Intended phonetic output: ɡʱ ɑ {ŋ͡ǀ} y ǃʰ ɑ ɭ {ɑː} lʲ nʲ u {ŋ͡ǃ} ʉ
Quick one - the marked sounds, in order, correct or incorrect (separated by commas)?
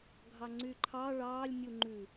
correct, correct, correct